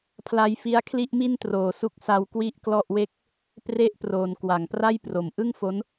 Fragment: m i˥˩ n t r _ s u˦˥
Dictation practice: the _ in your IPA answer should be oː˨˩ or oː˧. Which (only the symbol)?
oː˨˩